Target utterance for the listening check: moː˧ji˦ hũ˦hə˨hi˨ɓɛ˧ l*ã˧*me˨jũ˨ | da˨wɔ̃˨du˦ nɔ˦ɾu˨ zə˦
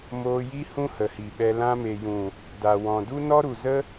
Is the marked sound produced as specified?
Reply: yes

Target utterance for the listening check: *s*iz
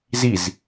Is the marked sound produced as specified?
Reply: no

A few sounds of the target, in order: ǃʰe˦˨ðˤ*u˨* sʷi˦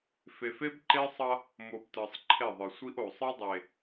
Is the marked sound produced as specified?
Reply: no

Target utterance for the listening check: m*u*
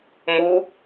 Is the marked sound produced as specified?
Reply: yes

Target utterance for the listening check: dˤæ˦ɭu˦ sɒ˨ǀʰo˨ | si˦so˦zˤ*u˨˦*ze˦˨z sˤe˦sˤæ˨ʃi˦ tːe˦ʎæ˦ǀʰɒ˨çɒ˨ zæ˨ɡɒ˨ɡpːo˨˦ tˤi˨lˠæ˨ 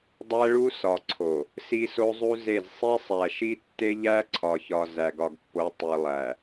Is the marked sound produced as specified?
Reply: no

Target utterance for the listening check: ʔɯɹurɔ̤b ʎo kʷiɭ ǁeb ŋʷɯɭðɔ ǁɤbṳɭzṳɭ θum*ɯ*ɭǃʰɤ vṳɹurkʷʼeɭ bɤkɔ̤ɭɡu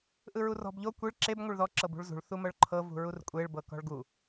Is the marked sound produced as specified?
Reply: no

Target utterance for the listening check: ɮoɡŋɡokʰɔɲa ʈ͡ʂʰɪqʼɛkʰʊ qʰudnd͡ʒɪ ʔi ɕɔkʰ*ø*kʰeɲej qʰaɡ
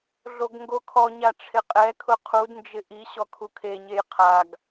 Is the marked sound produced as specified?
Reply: no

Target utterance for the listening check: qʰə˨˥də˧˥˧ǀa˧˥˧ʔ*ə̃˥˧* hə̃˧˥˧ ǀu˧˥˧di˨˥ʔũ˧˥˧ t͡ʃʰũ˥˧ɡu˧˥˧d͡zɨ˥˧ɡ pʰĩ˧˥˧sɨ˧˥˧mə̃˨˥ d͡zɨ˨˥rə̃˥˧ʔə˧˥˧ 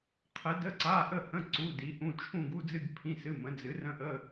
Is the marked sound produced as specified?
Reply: no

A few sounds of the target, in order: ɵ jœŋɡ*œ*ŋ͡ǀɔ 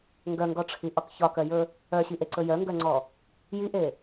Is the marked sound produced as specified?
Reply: yes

